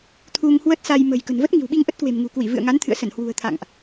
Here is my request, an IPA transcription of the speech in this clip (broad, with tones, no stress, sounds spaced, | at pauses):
t̪ʰ u˧ ŋ h w ə˦˥ t̚ s a˧ j m ə̤˨˩ j k ə̤˨˩ n v ə˦˥ t̚ ŋ i̤˨˩ w ɓ i˧ ŋ ʔ ə˦˥ t̚ k w e̤˨˩ m ŋ ṳ˨˩ k w i˧˩ v ɨ̰˧˨ ə̯ ŋ a˨˦ n t̪ʰ ɨ̰˧˨ ə̯ s ə˧˩ n h w ṳ˨˩ ə̯ t̪ʰ a̰˧˨ ŋ ʔ